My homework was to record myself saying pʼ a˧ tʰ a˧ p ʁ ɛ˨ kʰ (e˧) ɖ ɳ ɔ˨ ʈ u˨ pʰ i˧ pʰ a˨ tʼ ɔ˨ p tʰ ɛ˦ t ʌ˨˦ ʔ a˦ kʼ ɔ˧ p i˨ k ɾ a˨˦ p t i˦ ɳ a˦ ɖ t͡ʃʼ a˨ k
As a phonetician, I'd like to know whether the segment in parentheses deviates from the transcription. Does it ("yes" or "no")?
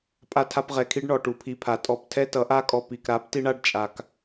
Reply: yes